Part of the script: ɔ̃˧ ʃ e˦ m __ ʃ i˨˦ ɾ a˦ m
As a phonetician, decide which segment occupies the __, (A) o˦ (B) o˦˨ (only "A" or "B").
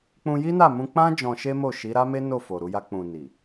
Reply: B